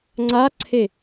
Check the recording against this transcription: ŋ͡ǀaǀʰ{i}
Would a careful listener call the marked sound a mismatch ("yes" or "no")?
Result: yes